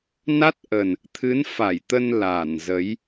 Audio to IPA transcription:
n a˦˥ t̚ ʔ ə˨˩ n | t̪ʰ ɨ˨˦ n f a˧˩ j t̪ ə˧ n l a˧˩ n z ə˨˦ j

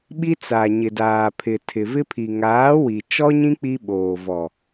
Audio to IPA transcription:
ɓ i˦ t͡s a˨ ɲ ɪ˨ d aː˨ pʰ ɪ˨ tʰ ɪ˨ v ɪ˦ pʰ i˨ ŋ aː˨˦ w i˨ t͡ʃ ɔ˦ ɲ ĩ˦ k͡p i˦ ɓ oː˨ v ɔ˨

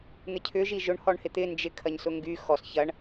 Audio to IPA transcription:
n̪ ɪ cʰ ʏ ʒ i ʒ ʊ ɳ h ɔ ɳ h ɪ t̪ ɪ n d͡ʒ ɪ kʰ ɐ ɲ s ʊ ŋ ɡ y x ɔ s ç ɐ ɳ

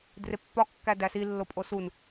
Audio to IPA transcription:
d r e pː ɒ kː æ d æ s i lː o pʼ o s u n

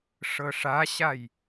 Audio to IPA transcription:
ʂ ɤ ʂ a ɕ a j

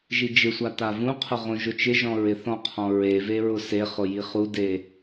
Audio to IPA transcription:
ʒ i d͡ʒ ɪ sʷ a t a v ũ qʰ ʊ ʁ õ ʒ ʊ t͡ʃ ɪ ʒ ɔ̃ ɹ ɪ θ ɔ̃ qʰ ɔ̃ ɹ e v e ɹ ʊ s e χ ʊ j i χ u d e

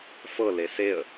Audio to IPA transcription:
f ɤ l e s e ə̯

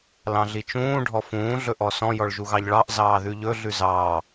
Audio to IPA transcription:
l ɑ̃ ɮ i t͡ʃ ũː ɖʱ ɔ f ũː ɮ ɵ ʔ ɔ s ɔ̃ j ɔ ɭ ʒ u ɣ ɑ ʎ ɭ ɑ ʔ z ɑː ð ʉ ʎ ɵ ɮ ʉ z ɑː

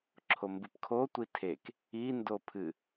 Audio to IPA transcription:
ǁʰ o m b ɨ p kʰ o tʷ i tʰ e k | i n d o pʰ ɨ

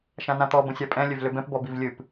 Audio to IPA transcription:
ʃ ã n ã t̪ ɔ b ə̃ sʲ a pʼ ɛ̃ lʲ ø v l ø b ɛ̃ p b ɔ b i v lʲ ɨ p

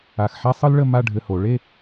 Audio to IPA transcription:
a˧˩ x ħ a˥ sˤ ɯ˥ l ɭ ə˥˧ m a˥˧ ɖʱ ɘ˧ h o˩˧ ɭ e˥˧

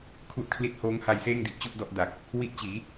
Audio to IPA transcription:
kʰ u˦˥ ʔ kʰ l i˦˥ t̚ h oː˦˥ ŋ h a˧ j s eː˥˩ ŋ d i˨˩ ʔ t͡ɕ u˥˩ ʔ d ɔ˥˩ ʔ d a˨˩ k̚ | w i˦˥ ʔ t͡ɕ iː˩˦

